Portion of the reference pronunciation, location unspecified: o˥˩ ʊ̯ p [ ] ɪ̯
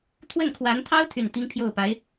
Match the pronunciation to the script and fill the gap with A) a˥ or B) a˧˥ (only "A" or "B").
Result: B